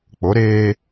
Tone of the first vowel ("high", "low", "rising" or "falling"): rising